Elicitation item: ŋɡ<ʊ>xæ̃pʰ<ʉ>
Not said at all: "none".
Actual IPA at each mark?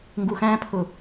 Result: u, ʊ

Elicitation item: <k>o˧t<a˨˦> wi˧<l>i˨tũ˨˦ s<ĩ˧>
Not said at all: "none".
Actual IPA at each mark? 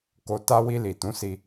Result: k, a˦, l, i˧

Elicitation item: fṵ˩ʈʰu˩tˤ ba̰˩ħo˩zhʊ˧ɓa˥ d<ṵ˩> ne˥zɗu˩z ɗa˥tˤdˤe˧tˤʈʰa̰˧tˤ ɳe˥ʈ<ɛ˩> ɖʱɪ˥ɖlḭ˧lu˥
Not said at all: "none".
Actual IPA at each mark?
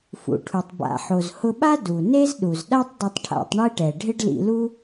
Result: u˩, ɛ˩

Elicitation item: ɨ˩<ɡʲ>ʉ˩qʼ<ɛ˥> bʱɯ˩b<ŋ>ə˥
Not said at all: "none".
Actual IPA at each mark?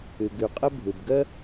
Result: ɡ, ə˥, ɡ

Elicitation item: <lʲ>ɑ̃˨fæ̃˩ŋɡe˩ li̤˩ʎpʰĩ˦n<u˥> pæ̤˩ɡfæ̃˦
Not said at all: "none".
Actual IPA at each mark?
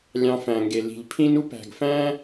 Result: lʲ, u˥

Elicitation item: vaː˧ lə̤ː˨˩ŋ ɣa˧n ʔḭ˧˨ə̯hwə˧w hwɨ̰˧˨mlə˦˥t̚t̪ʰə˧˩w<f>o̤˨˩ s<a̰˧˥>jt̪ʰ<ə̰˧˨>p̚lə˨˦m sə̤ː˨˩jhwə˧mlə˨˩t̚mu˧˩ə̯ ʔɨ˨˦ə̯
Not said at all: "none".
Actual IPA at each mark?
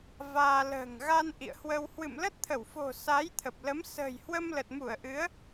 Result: f, a˨˦, ə˨˩

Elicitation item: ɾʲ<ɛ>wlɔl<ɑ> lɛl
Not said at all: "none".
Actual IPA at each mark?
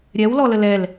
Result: ɛ, ə

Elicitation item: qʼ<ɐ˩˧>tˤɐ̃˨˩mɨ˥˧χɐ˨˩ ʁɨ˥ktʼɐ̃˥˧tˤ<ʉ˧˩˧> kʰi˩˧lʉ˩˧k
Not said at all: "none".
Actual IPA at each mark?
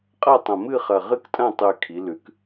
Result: ɐ˥˧, ʉ˨˩

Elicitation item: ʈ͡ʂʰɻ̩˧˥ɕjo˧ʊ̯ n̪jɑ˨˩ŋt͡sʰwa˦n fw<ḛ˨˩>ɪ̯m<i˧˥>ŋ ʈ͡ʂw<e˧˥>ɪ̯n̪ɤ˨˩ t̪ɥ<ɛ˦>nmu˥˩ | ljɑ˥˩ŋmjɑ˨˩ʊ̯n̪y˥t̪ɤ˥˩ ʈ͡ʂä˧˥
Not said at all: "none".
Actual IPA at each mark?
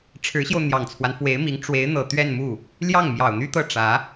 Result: e˧˥, i˧˥, e˧˥, ɛ˥˧

